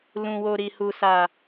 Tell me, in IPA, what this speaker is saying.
l ũ˨ w o˨ ɾ i˨ h u˨ s a˨

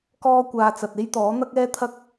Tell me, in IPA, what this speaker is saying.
k ɔː˥ kʷ aː˧ t͡s ɐ˨ t̚ e˥ j t̪ ɔː˨˥ n̪ ɐ˥ k̚ ɛː˥ t̪ʰ ɐ˥ k̚

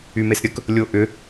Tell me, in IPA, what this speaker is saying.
y m e s ɾʲ ə k | lʲ o ʔ ʏ

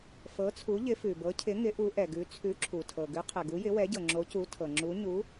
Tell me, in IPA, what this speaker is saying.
f ɤ˩˥ t͡sʰ u˩˥ ʎ ɪ˩˥ f ʉ˩ b ɤ˩˥ cʰ ɪ˩˥ ŋ ɪ˩˥ ʔ u˩˥ ʔ ɛ˩ ɡ ʉ˩˥ t͡sʰ ʉ˩˥ ǁʰ u˩ tʰ ɤ˩ ɡ ʉ˩˥ qʰ ɛ˩ ɡ u˩˥ j ɪ˩˥ w ɛ˩˥ ɟ ɤ˩ ŋ͡ǁ o˩˥ c u˩˥ tʰ ɤ˩ ŋ͡ǁ u˩˥ ɲ u˩˥

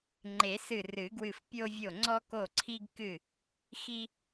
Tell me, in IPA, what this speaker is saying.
ŋ͡ǃ e˨˩˦ s ɨ˧˩ r ɨ˨˩˦ ɡ w ɨ˧˩ f pʲ o˧ vʲ o˧˩ ŋ͡ǀ ɔ˧ k o˧˩ ǀʰ i˧ ɡ k ɨ˧˩ | x i˧

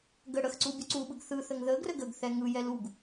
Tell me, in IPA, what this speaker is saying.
ɡ ə ɽ ə x ǀ u bʲ u ǀ u ɓ ɯ ɡ θ ɯ θ ə ŋ ð ə ɡ r ə ɡ ə ɡ θ ɛ ŋ ɯ j ɛ l u ɡ

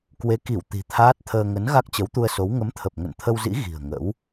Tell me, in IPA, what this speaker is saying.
k w e˨˦ k i˧˩ w t̪ i̤˨˩ t̪ʰ aː˦˥ t̚ t̪ʰ əː˧ ŋ ə˨˦ n ɣ a˦˥ k̚ t͡ɕ ə˨˦ w t̪ u˧ ə̯ s o˨˦ w ŋ ə˨˦ m t̪ʰ ə˨˩ p̚ ŋ ə̰˧˨ n t̪ʰ ə˧ w z ḭ˧˥ ɣ i̤˨˩ ə̯ ŋ ə̰˧˥ w

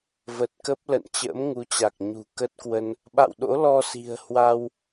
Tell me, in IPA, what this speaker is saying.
v ə˨˩ t̚ k ə˦˥ p̚ l ə̰˧˨ n t͡ɕ ə̰ː˧˥ m ŋ u˨˦ t͡ɕ a˨˩ k̚ ɲ ṳ˨˩ k ə˦˥ t̚ k w ə˧ n | ɓ a̰˧˨ w ɗ o̰˧˥ l ɔ˧ s i̤˨˩ ə̯ h w a˧ w

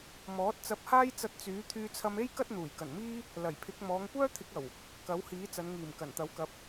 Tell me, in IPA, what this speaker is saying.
m ɔː˨˥ t̚ t͡s ɐ˧ p̚ h aː˥ j t͡s ɐ˧ t̚ t͡s yː˨˥ t̪ʰ yː˧ t͡sʰ ɐ˧ m e˥ j k ɐ˥ t̚ n̪ uː˨˩ j k ɐ˨˩ n m iː˥ | l ɐ˨˩ j pʰ ɪ˨˥ k̚ m ɔː˨˧ ŋ kʷ œː˥ t̪ʰ ɪ˨˥ k̚ ɐ˨˩ w | k ɐ˨˥ w h iː˨˥ t͡s ɐ˨˧ n ŋ iː˨˩ m k ɐ˨˩ n t̪ ɐ˨˥ w k ɐ˨˥ p̚

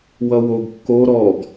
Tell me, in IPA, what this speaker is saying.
w ʌ w o ɡ kː o ɾ ɔ ɡ

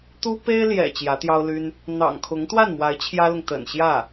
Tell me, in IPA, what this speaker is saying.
t̪ u˥ p e˥ ɪ̯ l j ɛ̰˨˩ t͡ɕ j ä˧˥ t̪ j ɑ˥ ʊ̯ l y˥ n | n̪ ɑ̰˨˩ ŋ kʰ ʊ˧˥ ŋ t̪ w a˥˩ n m w a˧˥ ɪ̯ t͡ɕʰ j ä˥ l ʊ˨ ŋ t̪ ə̰˨˩ n ɕ j ä˥˩

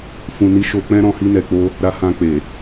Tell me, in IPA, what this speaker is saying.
f ũ˧ n i˦ ʃ o˧ k͡p ɛ̃˦ ɾ ɔ̃˧ h i˧ n ɛ˨ k͡p o˧ | ɾ a˧ h ã˧ k͡p e˨

